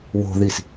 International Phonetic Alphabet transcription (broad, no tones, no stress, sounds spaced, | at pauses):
w o̤ ð i s